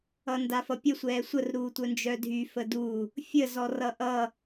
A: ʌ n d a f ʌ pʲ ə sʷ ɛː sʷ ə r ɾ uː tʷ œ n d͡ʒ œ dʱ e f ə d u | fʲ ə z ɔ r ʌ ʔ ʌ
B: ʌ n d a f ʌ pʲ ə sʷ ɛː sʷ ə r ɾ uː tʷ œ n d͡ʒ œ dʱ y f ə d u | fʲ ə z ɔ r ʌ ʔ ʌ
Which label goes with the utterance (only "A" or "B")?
B